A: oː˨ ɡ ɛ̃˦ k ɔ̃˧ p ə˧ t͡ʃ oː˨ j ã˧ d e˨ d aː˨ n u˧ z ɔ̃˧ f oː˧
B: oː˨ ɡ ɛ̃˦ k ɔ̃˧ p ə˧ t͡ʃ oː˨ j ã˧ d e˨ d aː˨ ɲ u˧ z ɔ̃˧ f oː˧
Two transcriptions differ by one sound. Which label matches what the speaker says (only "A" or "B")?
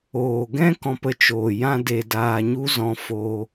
B